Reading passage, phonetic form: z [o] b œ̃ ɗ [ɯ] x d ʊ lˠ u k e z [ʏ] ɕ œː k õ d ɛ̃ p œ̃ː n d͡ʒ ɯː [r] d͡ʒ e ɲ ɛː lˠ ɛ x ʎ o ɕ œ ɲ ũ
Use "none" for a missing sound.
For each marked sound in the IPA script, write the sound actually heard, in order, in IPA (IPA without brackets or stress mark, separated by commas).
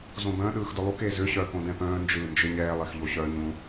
õ, ɯː, ʏ, n